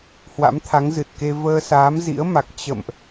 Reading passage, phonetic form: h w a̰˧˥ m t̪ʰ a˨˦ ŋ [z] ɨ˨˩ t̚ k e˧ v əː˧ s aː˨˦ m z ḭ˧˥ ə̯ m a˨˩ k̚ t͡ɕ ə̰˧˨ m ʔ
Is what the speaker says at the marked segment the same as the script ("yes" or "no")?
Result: yes